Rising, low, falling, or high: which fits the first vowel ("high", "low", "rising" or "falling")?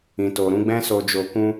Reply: low